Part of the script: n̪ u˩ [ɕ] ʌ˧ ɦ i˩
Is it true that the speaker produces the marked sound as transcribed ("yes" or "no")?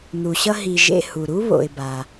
yes